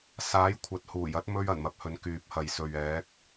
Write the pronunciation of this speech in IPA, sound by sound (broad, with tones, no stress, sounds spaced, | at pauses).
s aː˨˥ j kʷʰ ɐ˨ t̚ h uː˨˩ j ɐ˨˥ t̚ m ɵ˧ ɥ ɐ˨˩ n m ɐ˨ p̚ h ɵ˨˧ n k yː˨ p̚ h ɐ˨ j s ɵ˨ ɥ ɛː˨˥ k̚